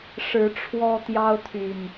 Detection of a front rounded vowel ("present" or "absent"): present